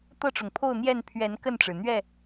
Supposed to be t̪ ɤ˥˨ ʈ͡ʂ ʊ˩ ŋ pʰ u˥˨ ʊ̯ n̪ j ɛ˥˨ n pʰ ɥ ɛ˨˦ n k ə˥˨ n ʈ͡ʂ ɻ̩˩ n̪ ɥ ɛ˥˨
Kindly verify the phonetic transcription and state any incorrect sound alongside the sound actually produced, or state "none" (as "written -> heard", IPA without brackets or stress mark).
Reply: u˥˨ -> o˥˨